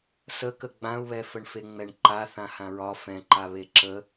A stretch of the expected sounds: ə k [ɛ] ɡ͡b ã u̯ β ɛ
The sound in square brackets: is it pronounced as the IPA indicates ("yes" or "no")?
no